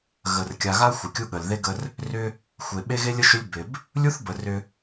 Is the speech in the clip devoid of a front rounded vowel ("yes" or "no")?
no